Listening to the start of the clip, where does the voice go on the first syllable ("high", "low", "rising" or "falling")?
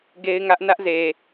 high